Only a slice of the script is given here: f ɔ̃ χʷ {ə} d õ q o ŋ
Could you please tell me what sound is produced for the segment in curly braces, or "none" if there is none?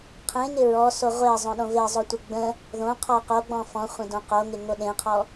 ə̃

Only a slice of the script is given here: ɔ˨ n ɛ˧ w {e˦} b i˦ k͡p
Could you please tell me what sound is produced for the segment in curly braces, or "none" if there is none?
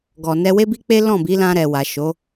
e˦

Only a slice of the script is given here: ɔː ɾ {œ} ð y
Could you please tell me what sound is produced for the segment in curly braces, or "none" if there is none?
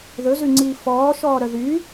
œ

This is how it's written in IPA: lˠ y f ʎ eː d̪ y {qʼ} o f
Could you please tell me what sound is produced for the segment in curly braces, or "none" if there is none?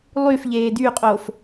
qʼ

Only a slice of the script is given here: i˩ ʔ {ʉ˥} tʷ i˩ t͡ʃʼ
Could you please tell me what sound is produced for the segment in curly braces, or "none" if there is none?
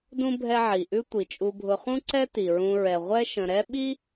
ʉ˥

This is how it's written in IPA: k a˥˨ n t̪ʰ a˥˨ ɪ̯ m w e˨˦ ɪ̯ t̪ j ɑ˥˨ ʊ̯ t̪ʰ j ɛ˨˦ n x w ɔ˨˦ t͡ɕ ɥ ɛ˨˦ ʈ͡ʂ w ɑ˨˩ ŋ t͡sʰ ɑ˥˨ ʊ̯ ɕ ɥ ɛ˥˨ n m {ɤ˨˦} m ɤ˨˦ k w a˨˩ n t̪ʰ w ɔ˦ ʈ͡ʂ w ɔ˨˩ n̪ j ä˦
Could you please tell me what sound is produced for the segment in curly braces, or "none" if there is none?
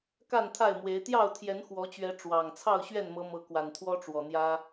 ɤ˨˦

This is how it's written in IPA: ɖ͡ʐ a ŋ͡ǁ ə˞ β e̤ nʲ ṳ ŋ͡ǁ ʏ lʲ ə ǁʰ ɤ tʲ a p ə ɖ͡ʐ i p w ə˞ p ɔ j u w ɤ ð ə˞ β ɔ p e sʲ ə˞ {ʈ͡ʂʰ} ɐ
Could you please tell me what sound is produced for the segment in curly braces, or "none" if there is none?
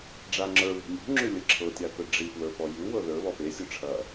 ʈ͡ʂʰ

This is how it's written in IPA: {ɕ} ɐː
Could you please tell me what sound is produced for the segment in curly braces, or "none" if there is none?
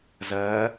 z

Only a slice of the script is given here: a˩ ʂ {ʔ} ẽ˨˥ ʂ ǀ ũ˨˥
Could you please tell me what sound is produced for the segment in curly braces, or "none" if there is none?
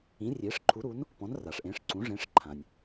ʔ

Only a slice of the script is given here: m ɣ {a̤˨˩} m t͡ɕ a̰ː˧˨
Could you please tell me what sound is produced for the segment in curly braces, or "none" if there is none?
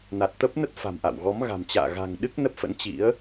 a̤˨˩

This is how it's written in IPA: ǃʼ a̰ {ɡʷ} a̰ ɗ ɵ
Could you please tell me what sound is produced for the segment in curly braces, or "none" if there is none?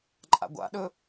ɡʷ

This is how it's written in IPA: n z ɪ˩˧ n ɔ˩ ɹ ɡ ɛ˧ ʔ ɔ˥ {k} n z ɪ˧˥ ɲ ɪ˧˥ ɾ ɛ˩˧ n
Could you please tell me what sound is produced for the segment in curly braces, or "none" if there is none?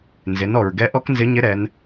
k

